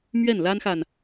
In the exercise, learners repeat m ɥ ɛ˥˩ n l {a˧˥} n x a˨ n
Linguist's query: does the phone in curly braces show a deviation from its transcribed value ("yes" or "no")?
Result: yes